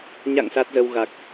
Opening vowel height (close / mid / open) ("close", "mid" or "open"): open